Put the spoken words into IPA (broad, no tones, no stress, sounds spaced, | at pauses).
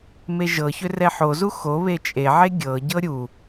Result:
m e ʒ ɤ ç ʏ r ɛ ħ o z u x o β e t͡ʃʼ e ʕ e ɡʲ ɤ ɟ ɤ ɾʲ u